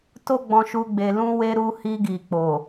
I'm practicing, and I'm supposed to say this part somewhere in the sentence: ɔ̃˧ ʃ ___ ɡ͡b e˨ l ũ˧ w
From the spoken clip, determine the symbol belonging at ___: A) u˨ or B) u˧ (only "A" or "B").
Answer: B